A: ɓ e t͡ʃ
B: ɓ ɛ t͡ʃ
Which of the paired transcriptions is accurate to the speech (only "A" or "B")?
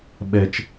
B